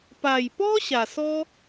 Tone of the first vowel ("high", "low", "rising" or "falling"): low